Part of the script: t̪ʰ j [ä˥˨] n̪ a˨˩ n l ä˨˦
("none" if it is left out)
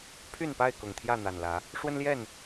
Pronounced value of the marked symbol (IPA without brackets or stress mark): ä˥˨